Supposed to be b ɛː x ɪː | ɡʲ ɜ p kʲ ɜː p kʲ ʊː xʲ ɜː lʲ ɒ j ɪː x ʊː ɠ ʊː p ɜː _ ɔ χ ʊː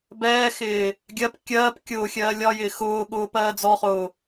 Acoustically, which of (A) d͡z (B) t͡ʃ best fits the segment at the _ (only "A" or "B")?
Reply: A